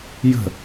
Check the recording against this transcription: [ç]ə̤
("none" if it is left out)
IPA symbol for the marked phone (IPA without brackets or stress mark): j